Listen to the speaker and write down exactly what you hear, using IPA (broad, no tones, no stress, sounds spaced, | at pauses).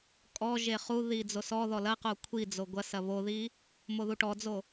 kʼ ɔ ʒ e χ u ð i d͡z o s ɔ ð ɔ l ɐ q o kʷʰ i d͡z o ɡʷ ɐ s ɐ β o ð i | m o ð u ʈ ɔ d͡z o